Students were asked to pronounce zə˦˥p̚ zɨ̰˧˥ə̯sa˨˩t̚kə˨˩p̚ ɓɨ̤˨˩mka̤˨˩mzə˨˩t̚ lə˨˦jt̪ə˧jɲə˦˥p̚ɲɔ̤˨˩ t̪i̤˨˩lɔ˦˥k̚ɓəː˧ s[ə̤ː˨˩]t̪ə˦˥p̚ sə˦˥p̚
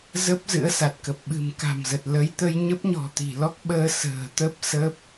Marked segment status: correct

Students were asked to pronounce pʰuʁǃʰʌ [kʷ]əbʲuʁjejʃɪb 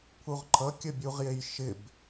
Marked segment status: incorrect: kʲ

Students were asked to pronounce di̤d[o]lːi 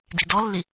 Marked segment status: incorrect: ɔ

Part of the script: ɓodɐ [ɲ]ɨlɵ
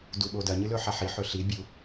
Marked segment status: correct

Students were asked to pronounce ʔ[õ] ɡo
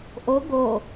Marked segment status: incorrect: o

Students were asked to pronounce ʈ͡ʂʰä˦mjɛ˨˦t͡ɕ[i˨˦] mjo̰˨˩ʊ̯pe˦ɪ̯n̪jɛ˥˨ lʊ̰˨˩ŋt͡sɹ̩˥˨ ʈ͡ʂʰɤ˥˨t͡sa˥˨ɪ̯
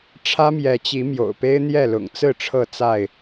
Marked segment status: correct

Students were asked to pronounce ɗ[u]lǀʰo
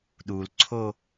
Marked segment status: correct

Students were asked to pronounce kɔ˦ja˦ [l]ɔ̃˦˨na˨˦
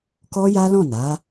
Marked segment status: correct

